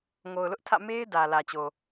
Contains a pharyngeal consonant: no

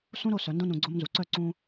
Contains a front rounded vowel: yes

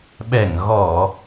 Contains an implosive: yes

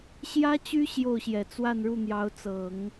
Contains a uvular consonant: no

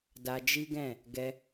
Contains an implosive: no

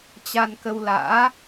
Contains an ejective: no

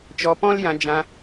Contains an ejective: no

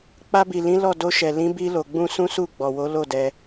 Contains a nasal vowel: yes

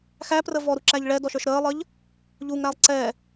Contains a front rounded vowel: no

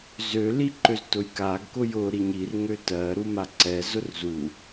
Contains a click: yes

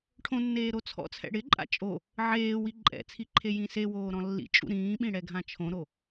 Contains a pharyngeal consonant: yes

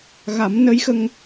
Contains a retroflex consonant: no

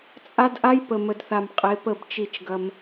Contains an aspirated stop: no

